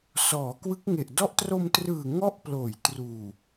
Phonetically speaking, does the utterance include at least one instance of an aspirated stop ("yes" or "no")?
no